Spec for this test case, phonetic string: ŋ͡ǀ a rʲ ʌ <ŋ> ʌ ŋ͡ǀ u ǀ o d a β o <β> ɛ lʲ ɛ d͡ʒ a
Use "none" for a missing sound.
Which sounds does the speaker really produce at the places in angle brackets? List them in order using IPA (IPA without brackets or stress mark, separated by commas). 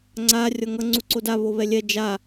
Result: ŋ, β